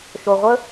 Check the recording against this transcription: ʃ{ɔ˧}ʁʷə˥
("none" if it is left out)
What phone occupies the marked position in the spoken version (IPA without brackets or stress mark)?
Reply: o˧